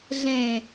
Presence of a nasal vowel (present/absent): present